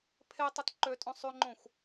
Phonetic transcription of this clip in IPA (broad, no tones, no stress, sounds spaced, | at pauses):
pʰ e tˤ ɯ t ǃ ø tʼ õ sˤ y ŋ͡ǃ õ xʷ